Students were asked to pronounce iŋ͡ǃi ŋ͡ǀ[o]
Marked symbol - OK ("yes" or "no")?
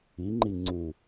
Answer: no